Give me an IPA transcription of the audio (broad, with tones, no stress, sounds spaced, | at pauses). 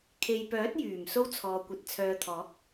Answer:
kʰ e˨ j p œː˨˥ t̚ j yː˨˩ m s o˥ w t͡sʰ ɔː˨ kʷ ɐ˨˥ t̚ t͡sʰ œː˨ t̪ʰ ɔː˨˥ k̚